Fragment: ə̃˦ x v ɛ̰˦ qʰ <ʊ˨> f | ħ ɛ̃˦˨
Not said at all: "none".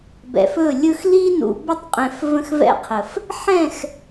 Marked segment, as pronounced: ə˨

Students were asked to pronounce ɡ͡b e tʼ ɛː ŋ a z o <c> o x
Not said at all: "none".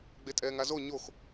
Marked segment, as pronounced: ɲ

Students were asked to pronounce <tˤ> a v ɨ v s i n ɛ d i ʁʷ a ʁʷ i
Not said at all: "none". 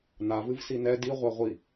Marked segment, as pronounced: n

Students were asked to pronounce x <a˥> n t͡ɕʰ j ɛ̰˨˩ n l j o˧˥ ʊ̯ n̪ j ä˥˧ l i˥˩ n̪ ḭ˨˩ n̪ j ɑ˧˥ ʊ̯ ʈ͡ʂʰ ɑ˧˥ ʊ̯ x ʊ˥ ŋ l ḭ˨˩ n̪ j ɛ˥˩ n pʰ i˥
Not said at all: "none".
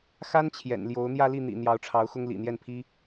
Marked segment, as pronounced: a˥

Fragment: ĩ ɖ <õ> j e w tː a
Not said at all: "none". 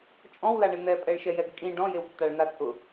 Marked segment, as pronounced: ɔ̃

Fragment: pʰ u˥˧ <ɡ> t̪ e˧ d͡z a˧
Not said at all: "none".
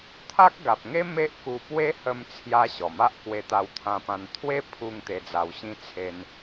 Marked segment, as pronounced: ŋ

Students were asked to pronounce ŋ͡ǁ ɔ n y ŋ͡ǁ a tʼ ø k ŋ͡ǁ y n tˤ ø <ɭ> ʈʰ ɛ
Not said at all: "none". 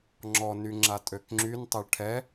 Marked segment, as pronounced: ɭ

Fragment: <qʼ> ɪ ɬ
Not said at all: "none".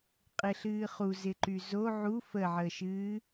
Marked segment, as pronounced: qʼ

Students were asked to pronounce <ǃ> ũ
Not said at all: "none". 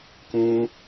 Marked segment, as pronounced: k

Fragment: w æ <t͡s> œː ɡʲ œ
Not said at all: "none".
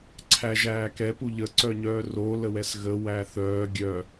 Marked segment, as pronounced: θ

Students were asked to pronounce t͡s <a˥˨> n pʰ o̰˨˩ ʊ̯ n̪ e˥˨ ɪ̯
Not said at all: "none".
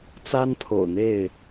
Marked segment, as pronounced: a˦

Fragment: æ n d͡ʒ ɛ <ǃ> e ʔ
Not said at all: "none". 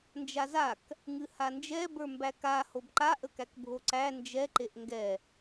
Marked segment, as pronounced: ǃ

